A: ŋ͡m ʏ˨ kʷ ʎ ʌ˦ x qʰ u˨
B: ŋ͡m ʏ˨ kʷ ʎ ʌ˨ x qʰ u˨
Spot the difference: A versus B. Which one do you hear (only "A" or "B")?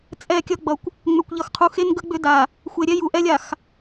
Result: B